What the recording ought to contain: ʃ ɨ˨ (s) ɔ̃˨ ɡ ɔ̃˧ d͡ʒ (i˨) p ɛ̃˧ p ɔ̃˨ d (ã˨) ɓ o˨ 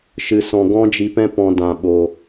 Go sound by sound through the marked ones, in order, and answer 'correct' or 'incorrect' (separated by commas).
correct, correct, correct